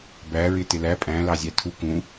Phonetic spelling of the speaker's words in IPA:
b æ ɹ ɪ t ɪ l æ pʼ æ̃ l ɑ zʲ æ tʰ u k ũ

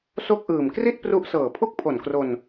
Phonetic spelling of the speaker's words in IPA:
s o˥˩ k̚ ʔ ɯː˨˩ m k r i˥˩ t̚ p r u˦˥ ʔ s ɤː˨˩ pʰ u˥˩ k̚ pʰ o˨˩ n k r o˧ n

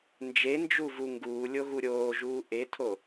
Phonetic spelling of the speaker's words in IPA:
n d͡ʒ e n d͡ʒ u v u ŋ ɡ uː lʲ o ɣ u ɾʲ oː ʒ uː ʔ e tʰ o

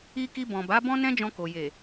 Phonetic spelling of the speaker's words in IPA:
i˧ k i˧ b ɔ̃˨ b a˨˦ b ɔ̃˦ n ɛ̃˦ d͡ʒ ɔ̃˧ k o˨ j e˨

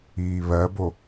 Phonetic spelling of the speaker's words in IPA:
iː β ɜ b o

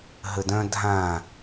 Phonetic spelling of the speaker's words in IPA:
ɦ ə d œ̃ dʱ ã

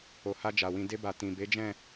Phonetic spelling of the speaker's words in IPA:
o˨ h a˧ d͡ʒ a˨ w ĩ˧ d e˧ b a˨ t ĩ˨ b e˨˦ d͡ʒ ɛ̃˦˨

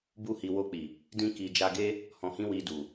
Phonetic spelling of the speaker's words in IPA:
b u˧ h i˨ w o˧ k͡p i˨ | d ĩ˧ k i˨ d͡ʒ a˧ ɡ e˦ | h ɔ̃˨ h ĩ˧ w i˨ d u˨

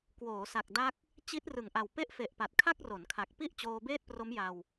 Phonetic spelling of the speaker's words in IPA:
k w oː˩˦ s a˨˩ k̚ d a˦˥ k̚ | t͡ɕ i˦˥ t̚ r ɯ˨˩ ŋ ʔ a˨˩ w p e˥˩ ʔ f e˨˩ ʔ p a˨˩ t̚ kʰ a˥˩ k̚ r o˩˦ n kʰ a˨˩ k̚ p i˥˩ ʔ t͡ɕ oː˧ b eː˥˩ t̚ p r o˦˥ m j a˧ w

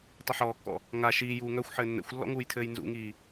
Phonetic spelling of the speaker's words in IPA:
tˤ ɘ ħ ɔː kː ɔ̰ | ŋ a ʃ iː j uː ŋ œ xʷ ħ ɘː nː ɛ̰ xʷ lː ɔ̰ ŋ uː j tʰ ɘː j n z ṵ ŋ iː

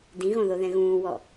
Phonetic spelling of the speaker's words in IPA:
d ĩ ɣ õ ð o ð ɛ̃ ɣ ũː w ɔ

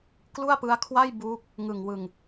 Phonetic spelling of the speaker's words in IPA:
k l u˥˩ a̯ p ɯ˦˥ a̯ kʰ w a˥˩ j b uː˦˥ k̚ | ŋ ɯ˨˩ ŋ w ɯ˨˩ ŋ

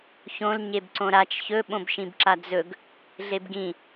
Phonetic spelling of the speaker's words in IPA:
ç õ l ɲ e b ǀ õ ɾ a t͡ʃ ç ɵ ɓ õ b ʃ ĩ b ǁ a d͡z ɵ ɡ | ɮ e b ɡ ĩ

